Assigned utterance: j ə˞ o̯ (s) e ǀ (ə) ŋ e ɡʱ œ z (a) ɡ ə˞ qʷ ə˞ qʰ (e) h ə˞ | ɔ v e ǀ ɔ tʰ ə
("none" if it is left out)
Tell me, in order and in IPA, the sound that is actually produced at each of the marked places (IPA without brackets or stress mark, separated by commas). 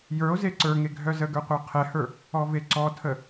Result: z, ə˞, ə, ɛ